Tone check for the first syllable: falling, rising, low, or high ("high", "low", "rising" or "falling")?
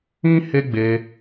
high